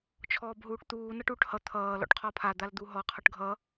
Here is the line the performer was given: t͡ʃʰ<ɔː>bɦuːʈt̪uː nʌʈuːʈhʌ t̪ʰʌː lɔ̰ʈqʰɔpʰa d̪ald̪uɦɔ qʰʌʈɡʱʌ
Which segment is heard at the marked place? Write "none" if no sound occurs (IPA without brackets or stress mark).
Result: ɔː